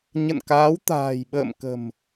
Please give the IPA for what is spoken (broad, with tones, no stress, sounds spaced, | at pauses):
ɲ ə̰˧˨ n k aː˨˦ w t̪ a̤ː˨˩ j ɓ ə̰ː˧˨ m k ə̤˨˩ m